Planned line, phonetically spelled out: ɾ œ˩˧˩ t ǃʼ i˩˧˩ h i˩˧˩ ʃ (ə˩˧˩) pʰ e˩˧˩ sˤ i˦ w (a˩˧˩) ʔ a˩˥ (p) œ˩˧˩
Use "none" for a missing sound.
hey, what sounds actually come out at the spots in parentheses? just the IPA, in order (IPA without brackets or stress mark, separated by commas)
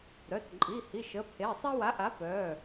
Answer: ə˩˧˩, a˩˥, p